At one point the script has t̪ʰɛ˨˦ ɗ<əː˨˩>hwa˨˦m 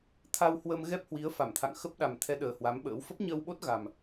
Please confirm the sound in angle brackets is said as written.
yes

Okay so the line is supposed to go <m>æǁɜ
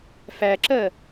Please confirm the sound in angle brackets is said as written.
no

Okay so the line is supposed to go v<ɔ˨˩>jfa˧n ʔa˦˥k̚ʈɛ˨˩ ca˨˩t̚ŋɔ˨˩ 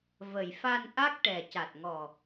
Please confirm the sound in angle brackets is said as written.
no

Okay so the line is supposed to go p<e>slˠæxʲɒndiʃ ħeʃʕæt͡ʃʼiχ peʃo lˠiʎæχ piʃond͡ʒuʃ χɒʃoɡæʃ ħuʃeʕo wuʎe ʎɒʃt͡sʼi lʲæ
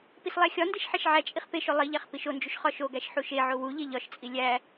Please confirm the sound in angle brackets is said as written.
no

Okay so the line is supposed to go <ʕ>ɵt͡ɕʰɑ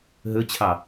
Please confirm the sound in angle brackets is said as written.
no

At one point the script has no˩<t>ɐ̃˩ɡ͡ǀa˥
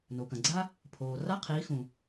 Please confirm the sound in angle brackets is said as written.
no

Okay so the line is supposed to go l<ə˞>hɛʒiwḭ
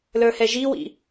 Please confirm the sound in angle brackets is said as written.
yes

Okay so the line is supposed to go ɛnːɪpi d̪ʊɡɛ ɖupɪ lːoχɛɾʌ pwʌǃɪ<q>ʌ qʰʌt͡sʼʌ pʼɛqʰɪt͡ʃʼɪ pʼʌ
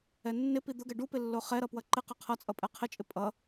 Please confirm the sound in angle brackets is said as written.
yes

